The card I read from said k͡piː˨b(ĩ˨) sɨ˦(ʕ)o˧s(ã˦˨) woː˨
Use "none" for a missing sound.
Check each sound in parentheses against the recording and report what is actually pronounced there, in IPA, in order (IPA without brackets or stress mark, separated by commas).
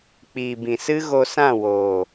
ĩ˨, ɣ, ã˦˨